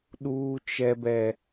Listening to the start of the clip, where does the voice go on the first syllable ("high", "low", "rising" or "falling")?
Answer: high